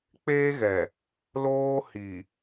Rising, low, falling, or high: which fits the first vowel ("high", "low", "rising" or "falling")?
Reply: high